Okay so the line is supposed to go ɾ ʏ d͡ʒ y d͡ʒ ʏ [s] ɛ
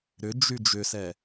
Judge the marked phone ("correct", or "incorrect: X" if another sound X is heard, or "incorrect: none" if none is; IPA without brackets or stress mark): correct